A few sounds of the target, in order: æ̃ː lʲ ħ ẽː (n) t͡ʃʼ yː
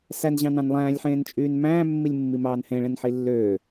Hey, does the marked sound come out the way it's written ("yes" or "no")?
yes